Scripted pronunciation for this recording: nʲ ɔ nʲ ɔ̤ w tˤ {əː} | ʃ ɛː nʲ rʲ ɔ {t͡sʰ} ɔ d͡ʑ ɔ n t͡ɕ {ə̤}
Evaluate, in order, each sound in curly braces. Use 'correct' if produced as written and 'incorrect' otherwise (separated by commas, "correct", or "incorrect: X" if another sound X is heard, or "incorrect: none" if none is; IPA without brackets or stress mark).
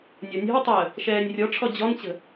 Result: correct, incorrect: ʈ͡ʂʰ, correct